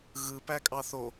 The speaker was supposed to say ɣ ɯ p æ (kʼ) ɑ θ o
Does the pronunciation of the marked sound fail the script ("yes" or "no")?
no